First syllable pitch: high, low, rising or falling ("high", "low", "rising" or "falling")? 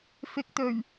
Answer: low